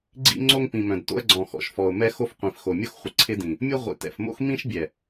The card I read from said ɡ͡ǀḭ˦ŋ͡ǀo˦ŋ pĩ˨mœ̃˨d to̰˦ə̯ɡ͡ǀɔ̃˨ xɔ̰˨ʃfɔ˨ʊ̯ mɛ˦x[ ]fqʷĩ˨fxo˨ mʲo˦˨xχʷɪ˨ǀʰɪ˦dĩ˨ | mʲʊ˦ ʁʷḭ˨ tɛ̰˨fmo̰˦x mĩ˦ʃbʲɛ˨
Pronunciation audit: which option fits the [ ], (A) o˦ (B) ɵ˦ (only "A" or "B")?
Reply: A